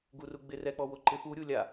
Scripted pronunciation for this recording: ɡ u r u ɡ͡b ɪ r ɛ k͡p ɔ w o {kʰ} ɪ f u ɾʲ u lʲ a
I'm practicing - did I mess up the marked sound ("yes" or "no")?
yes